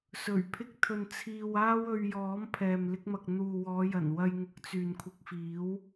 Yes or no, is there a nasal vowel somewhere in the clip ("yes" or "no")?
no